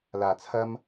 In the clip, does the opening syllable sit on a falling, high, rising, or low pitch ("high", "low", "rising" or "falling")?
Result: low